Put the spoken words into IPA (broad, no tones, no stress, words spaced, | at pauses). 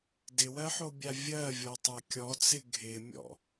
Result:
dɪwɜħobʲa vʲɜvʲɔtˤa kʲɔt͡sɪ ɡʱɪmʲɔ̰